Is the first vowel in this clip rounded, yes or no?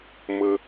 no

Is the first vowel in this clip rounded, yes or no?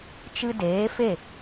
no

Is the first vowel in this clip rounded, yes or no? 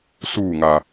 yes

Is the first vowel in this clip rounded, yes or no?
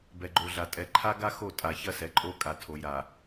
no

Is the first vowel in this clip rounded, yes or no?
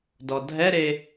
yes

